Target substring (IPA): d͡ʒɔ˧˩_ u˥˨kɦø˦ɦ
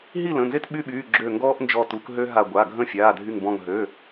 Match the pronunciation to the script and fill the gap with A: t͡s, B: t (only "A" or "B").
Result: B